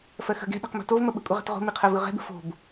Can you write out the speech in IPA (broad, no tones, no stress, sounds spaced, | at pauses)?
f ɜ x ə̤ ɡ ɛ̤ ɗ ɛ̤ q m o̤ t o v m ə ɓ ə̤ kʷʼ ɛ ʁ ɛ̤ t ʁ o̤ m i qʰ ɜ v ɯ ʁ ɛ̤ b ə̤ f o̤ b